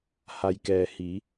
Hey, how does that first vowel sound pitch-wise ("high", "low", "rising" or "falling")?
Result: low